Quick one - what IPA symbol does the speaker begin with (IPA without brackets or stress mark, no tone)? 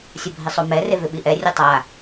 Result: sʲ